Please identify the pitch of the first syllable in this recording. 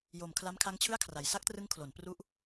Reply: low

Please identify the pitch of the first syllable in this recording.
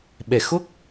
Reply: low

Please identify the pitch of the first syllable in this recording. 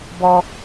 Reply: high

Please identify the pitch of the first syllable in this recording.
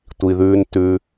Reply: low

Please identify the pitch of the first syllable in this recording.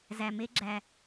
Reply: low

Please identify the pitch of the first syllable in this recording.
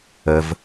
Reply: low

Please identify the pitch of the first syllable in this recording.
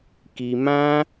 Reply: low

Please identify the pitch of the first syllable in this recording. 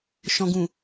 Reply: low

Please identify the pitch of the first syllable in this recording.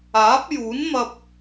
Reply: rising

